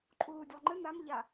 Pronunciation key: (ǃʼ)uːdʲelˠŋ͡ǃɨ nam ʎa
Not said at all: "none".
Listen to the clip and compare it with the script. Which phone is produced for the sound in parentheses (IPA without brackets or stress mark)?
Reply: ǃʼ